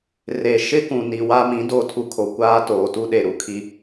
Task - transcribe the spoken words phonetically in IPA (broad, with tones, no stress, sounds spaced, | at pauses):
r e˨ ʃ ɪ˦ k ũ˨ n i˨ w a˦ m ĩ˨˦ d o˦˨ tʰ u˦ kʰ o˨ kʷ aː˦ t oː˨ t u˦ ɗ e˨ ɾ u˨ kʰ i˦